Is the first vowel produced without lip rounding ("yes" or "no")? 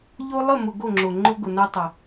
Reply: no